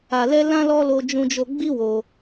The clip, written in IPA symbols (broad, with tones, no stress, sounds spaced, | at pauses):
a˧ l ɛ˦ l ã˦ l ɔ˦ l o˦ d͡ʒ ũ˦ d͡ʒ o˦ ɡ͡b i˦ w o˧